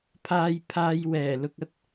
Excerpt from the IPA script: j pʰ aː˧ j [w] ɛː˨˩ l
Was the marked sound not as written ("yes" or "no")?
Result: no